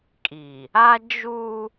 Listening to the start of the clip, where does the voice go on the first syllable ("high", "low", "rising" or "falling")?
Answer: low